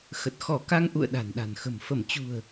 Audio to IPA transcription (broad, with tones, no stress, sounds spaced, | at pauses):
x ə˨˩ t̚ x ɔ˧˩ k a˧ ŋ ʔ ṵ˧˨ ə̯ ɗ a̤˨˩ n ɗ a̤˨˩ n x ə̤˨˩ m f ə˧˩ m t͡ɕ ṳ˨˩ ə̯